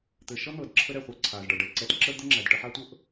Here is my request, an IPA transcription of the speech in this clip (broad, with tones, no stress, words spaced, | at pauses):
t̪ɘ˩ʃʌ˥ n̪ɤ˩dǁʰə˧ ɾɛ˩χʷa˧ ǀʰa˩zɖʌ˩ɖɛ˩ǀɛ˧t ǁə˥d̪ə˥ŋ͡ǁæ˩d ʈə˧ħa˥tʷɤ˥ʔ